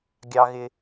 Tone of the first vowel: high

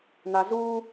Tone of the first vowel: low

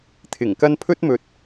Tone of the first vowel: low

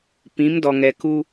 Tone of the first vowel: rising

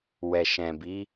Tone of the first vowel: low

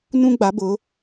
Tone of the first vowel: high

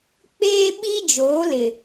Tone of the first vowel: high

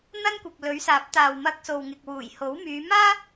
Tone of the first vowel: high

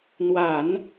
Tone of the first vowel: low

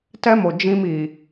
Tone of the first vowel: high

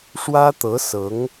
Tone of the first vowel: high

